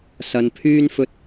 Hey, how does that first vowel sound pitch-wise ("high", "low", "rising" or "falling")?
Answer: low